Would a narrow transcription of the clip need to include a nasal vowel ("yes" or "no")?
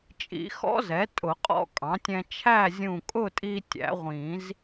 yes